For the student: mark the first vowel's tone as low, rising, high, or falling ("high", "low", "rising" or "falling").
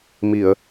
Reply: low